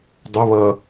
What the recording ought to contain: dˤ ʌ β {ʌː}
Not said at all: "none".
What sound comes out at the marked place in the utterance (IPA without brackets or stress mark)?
ʌː